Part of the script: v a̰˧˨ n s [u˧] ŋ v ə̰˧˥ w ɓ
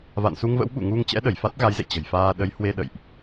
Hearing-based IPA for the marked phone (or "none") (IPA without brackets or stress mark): u˧